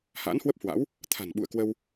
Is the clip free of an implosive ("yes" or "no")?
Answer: no